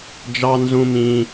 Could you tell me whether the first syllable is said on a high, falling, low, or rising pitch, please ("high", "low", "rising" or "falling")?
high